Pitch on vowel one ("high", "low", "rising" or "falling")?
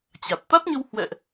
low